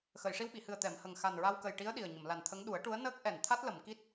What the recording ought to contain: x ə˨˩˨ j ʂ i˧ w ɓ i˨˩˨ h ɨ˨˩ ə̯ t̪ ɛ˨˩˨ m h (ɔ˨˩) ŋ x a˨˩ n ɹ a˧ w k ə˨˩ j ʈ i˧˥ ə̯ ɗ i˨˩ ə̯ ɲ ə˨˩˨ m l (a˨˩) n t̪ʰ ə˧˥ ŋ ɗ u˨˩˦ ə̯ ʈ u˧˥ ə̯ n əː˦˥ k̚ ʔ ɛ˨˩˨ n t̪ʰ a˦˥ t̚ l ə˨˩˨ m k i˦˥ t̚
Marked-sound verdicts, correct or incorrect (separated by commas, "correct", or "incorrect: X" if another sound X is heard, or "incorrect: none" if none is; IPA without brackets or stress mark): incorrect: ə˨˩, correct